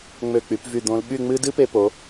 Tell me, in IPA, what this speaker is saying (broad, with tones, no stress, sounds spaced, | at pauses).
ŋ͡m ø˧˩ k͡p y˩˧ p v y˧˩ d̪ õ˧ l ɓ y˥˧ ŋ͡m ɨ˥ d ɨ˥ p e˧ p o˩˧